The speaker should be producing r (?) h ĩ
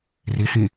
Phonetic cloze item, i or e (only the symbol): i